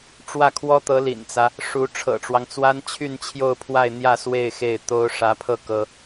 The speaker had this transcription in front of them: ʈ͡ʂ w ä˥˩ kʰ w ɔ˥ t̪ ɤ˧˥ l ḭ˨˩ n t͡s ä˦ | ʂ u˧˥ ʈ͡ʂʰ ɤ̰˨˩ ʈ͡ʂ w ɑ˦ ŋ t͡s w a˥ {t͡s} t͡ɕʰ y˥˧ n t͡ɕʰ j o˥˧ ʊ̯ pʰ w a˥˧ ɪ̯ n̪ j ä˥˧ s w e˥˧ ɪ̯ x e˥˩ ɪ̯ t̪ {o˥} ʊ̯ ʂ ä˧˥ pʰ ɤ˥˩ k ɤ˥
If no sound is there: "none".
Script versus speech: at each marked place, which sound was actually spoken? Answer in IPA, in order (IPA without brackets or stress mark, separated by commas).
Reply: n, o˥